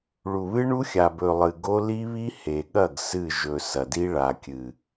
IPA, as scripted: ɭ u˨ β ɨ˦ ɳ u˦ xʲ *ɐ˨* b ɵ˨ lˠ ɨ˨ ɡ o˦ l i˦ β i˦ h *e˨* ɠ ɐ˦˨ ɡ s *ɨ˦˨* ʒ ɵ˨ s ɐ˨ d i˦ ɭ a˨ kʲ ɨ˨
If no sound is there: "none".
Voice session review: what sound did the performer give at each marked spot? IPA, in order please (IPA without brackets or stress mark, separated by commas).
a˨, e˨, ɨ˦˨